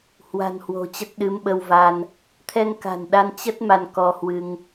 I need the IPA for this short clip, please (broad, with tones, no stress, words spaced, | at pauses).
hwa̤˨˩nhwo̤˨˩ t͡ɕə˦˥t̚ɗɨ˨˦mɓə˧wva˧n | t̪ʰɛ˧ŋka̤˨˩nɗa˧n t͡ɕə˦˥t̚ ma˧nkɔ˧hwɨ˧ŋ